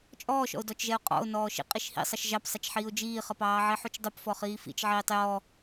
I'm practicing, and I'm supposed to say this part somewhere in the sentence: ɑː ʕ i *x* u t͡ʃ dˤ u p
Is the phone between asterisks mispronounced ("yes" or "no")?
yes